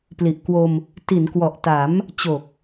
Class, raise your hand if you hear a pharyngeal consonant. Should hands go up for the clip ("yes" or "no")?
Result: no